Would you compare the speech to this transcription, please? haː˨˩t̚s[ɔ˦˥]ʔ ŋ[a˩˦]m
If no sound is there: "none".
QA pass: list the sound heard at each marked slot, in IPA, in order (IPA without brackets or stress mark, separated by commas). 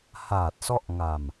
ɔ˦˥, a˧